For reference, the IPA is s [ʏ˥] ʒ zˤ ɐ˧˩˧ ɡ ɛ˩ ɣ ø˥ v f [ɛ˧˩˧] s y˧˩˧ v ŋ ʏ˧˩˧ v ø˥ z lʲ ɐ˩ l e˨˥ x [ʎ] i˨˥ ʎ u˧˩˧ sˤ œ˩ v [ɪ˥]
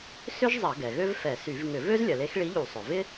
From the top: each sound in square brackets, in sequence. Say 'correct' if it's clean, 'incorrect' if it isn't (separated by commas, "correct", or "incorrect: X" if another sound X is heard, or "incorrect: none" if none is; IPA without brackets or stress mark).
correct, correct, incorrect: ɭ, correct